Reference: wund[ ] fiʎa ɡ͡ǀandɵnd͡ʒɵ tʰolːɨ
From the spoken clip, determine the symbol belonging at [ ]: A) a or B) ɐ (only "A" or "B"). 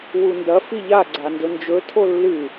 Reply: B